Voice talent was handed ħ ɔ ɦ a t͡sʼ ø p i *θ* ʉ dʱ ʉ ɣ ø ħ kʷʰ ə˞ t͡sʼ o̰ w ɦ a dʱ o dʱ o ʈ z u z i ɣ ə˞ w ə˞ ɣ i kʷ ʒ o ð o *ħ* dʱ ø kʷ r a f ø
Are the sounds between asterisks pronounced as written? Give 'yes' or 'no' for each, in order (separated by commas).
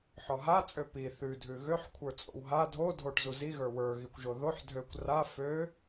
yes, yes